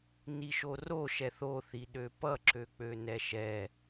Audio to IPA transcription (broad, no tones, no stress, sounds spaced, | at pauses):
n i ʃ o r o ʃ ɛ θ o θ i ɗ ø p ʌ ǁ ø k͡p ø n ɛ ʃ ɛ